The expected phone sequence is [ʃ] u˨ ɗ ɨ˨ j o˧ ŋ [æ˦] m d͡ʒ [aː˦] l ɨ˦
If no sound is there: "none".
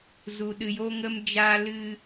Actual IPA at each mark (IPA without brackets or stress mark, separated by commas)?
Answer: z, ə˦, aː˦